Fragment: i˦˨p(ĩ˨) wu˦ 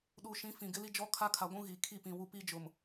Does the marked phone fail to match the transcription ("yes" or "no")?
no